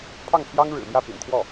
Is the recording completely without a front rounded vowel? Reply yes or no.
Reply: yes